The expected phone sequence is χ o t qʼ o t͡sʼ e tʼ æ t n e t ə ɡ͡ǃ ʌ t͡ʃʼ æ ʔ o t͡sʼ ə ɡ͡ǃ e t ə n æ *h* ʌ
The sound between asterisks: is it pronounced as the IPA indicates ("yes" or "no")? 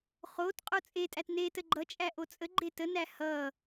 yes